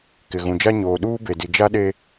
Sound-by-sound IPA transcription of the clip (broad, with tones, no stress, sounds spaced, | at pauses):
k ɪ˨ ɣ ũ˨ d͡ʒ a˦ ɲ oː˨ ɗ uː˦ b e˨ d i˨ d͡ʒ a˦ ɗ e˦